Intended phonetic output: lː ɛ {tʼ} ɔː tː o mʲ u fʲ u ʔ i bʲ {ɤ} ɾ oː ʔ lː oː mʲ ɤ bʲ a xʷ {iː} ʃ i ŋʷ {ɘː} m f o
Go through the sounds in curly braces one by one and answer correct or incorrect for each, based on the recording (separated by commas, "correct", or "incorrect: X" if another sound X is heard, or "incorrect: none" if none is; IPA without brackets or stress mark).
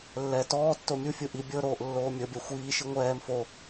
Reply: incorrect: t, correct, correct, incorrect: ɛː